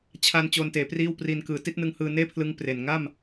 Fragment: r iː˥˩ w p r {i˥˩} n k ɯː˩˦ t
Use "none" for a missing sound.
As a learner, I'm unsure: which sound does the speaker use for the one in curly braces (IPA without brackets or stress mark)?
i˧